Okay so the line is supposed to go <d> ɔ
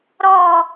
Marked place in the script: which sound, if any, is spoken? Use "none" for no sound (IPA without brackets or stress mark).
ɾ